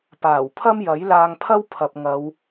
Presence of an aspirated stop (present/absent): present